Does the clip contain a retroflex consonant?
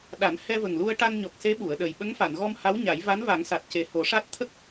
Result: yes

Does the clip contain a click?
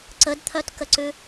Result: yes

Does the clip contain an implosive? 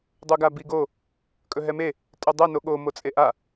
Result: yes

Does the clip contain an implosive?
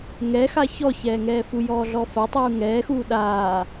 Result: yes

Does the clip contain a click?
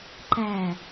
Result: yes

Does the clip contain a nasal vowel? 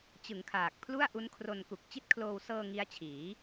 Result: no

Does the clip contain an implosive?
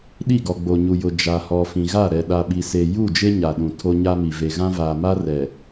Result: yes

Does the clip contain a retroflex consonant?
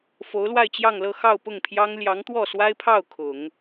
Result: no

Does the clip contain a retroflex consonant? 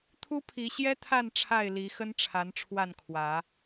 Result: yes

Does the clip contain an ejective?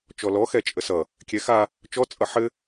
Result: yes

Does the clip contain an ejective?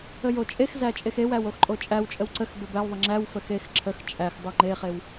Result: yes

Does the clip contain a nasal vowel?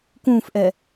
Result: yes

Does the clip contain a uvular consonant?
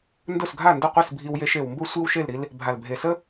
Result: yes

